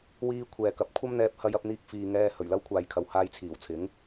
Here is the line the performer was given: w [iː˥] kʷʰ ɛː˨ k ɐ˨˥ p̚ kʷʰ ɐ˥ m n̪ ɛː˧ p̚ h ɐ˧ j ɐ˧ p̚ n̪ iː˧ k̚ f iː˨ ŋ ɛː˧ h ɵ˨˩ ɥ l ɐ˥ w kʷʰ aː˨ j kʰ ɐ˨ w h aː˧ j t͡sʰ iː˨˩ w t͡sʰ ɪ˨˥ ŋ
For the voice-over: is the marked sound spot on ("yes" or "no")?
no